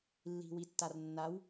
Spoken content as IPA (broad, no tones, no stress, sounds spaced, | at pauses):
lː i̤ w i tː a r nː a w